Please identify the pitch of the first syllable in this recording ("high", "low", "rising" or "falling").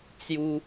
high